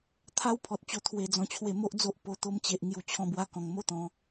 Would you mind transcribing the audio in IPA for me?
t̪ʰ a˦ w pʰ ɔ˨ t̚ t͡ɕ o˧ t̪ʰ w e˧ d͡z ɔ̃˧ t͡ɕʰ w e˧ m o˦ ʔ d͡z o˦ ʔ p o˧ t̪ o˧ m t͡ɕ e˨ ʔ ŋ j u˧ t͡ɕʰ ɔ̃˧ b w a˧ k ɔ̃˨˩ ŋ m o˦ t̪ ɔ̃˨˦

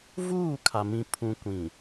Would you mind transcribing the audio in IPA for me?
v uː˦˨ kʰ a˨ m ĩ˨ pʰ ũ˨ kʷ ĩ˨

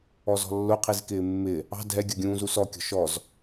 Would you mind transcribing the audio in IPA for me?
ɔ z ɔ̤ lː ʊ qʰ i z k ɪː mː ɪ | ɑ̤ dʱ ɛ ɡʲ ʌ ɡʲ ũː z u s ɔ kʲ ɔ̤ ʃ ɔ z

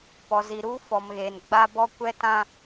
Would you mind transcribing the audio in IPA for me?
p ɔ˨ z i˨ ɾ uː˦ f ɔ˨ m ɣ eː˨ n ɡ͡b a˦ b ɔ˦ kʷ ɛ˦ t ã˦

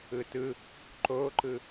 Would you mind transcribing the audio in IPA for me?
ɯ t ɯ | ǃ o ǃ ɯ

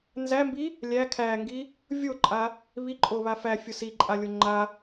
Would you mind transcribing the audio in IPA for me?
n z æ m b i | lʲ æ kʰ æ ŋ ɡ i | vʲ o ǃʼ a | β i ǃʼ o β a f æ fʲ o s i ǃʼ a lʲ o ŋ͡ǃ a

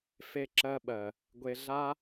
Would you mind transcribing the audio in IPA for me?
f e˧ ǁ ɜ˧ ɓ ɜ˨ | ɡʷ e˧ ɮ a˦

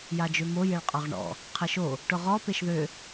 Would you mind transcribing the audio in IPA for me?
j a d͡ʒ ø m o j e ɭ qʼ ɔ ʁ ɳ ɔ̰ | qʰ ɛ ʃ o | ʈ ʊ ʁ ɔ p e ʃ ð ø

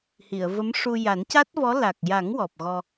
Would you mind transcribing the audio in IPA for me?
h i˨˩˨ ə̯ v ə˧˥ m ʂ u˧ j a˨˩˦ n c a˦˥ t̚ v ɔ˧˥ l a˨˩ k̚ j a˨˩˦ ŋ w ɔ˨˩ p̚ ɣ ɔ˧

